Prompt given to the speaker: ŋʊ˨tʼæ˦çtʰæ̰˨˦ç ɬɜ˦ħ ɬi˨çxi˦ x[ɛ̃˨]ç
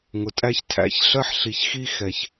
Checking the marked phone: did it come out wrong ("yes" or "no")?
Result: yes